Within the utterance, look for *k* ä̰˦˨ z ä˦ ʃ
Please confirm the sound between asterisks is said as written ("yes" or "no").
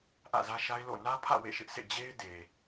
no